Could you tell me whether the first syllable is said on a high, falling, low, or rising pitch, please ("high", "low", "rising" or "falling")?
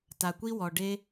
low